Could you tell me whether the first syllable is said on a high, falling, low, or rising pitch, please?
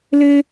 high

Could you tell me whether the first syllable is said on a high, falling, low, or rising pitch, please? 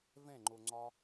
falling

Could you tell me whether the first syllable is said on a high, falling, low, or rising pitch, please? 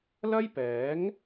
high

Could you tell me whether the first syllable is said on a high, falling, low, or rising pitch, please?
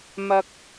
high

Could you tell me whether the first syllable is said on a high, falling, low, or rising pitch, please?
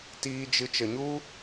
high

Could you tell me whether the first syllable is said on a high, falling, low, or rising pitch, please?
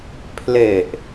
low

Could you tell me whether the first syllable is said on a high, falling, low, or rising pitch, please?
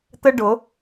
high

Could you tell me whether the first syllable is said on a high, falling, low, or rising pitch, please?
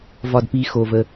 low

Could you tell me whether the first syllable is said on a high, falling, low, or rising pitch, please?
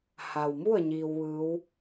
low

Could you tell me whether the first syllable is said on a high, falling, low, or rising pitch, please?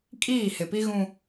falling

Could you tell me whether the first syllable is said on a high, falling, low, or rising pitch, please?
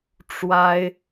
high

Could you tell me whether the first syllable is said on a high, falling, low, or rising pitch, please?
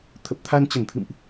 low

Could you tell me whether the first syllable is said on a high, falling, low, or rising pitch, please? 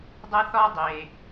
high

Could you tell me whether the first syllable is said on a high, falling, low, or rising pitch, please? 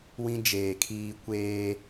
high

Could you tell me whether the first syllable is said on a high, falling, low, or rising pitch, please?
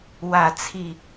falling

